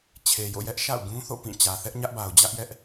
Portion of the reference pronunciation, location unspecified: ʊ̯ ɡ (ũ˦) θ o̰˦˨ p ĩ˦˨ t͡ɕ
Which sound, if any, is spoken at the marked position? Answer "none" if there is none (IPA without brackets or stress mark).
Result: ũ˦